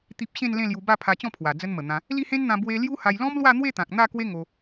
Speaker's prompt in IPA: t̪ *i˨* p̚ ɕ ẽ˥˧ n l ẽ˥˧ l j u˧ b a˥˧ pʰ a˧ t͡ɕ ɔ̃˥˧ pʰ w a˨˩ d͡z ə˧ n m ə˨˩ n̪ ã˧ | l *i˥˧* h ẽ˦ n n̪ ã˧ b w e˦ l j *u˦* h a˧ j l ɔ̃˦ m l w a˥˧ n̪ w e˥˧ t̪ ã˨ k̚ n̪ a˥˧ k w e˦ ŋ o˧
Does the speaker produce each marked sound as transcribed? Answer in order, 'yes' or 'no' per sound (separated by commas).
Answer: no, yes, yes